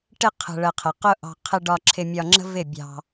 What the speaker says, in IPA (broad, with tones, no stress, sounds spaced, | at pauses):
ʈ ɪ˧ qʰ ə̤˨ ɭ ə˨ qʰ ə˨ q ʊ˦ ʔ ɑ̤˧ qʰ ɪ˧ ɖ ɒ˧ ǁʰ ɪ˧ mʲ ɒ˧ ŋ͡ǁ ə̤˦ v ɪ˦˨ bʲ ɑ̤˧